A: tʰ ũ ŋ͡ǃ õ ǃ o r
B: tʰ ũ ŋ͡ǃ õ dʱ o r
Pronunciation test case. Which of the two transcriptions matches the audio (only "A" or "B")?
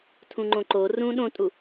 A